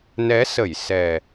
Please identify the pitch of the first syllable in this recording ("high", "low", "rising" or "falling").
rising